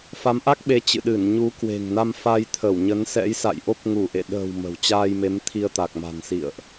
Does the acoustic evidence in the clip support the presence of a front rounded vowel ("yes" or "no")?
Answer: no